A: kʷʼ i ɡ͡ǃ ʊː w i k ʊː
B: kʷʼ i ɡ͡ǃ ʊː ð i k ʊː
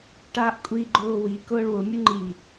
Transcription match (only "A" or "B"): A